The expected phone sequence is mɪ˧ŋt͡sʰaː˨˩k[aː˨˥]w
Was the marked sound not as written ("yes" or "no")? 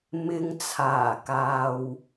yes